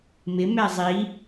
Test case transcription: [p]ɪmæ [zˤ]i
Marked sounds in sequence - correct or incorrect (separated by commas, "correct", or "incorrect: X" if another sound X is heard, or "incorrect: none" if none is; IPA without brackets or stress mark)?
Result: incorrect: m, correct